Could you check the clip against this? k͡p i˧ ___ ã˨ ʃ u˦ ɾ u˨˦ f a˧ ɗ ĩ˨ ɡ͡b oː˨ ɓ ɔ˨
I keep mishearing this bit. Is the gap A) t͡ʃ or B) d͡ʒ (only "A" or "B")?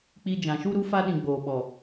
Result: B